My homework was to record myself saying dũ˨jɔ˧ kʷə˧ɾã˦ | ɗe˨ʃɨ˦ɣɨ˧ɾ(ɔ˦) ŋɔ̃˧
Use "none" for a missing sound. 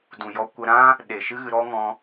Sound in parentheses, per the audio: ɔ˦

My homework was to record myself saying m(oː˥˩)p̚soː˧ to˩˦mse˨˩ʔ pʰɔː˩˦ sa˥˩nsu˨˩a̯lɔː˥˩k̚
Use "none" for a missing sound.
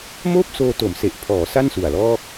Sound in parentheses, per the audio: oː˥˩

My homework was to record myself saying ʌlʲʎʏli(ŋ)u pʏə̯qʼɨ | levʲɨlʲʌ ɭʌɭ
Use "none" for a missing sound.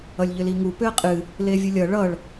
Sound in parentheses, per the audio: ŋ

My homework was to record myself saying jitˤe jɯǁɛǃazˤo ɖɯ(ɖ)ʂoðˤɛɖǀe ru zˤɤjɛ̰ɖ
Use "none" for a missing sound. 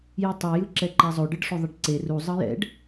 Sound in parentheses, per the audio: ɖ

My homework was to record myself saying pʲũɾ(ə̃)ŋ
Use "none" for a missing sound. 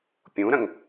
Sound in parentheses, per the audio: ə̃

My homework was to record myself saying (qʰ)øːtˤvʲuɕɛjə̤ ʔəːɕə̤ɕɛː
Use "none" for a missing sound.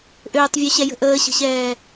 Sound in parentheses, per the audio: ʔ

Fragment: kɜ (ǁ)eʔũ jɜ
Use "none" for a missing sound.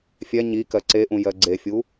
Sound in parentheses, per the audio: ǀ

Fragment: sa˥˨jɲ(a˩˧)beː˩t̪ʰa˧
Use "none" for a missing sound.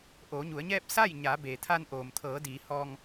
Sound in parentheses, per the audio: a˩˧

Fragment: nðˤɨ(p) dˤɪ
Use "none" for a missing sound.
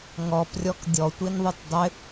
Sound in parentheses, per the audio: t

